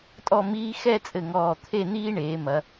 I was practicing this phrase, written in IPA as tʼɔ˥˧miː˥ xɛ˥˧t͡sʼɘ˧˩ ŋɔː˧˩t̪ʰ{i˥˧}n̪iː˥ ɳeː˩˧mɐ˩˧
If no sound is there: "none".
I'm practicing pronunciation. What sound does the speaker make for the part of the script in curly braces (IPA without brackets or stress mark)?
e˥˧